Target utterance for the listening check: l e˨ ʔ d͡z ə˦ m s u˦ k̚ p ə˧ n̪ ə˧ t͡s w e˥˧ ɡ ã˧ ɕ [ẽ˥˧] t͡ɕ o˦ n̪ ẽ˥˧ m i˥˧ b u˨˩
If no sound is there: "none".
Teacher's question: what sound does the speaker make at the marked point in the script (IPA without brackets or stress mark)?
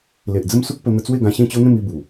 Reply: ẽ˥˧